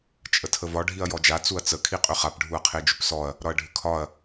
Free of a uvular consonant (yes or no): no